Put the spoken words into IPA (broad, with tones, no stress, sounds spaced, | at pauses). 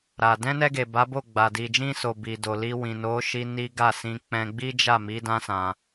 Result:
ɾ a˨ d ɛ̃˧ n ɛ˧ ɡ e˨ b a˨˦ b o˦˨ ɡ͡b a˨ d i˨ d͡ʒ ĩ˧ s o˨ b i˨ d o˨ l i˧ w ĩ˨ n o˨˦ ʃ i˧ n i˦ ɡ a˦˨ s ĩ˧ k͡p ɛ̃˧ ɡ͡b i˦ d͡ʒ a˦˨ m i˨˦ d ã˦ s ã˧